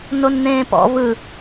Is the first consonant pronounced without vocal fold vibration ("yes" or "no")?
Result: no